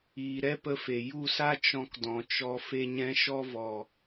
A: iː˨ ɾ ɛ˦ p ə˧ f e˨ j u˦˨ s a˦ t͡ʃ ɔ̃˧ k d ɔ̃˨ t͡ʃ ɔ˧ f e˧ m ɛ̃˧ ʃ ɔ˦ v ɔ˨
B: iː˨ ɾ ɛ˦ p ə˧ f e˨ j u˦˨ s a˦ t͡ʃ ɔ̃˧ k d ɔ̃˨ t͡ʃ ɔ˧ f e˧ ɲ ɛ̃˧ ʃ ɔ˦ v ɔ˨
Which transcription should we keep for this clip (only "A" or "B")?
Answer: B